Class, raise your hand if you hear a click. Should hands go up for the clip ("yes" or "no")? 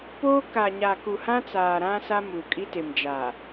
no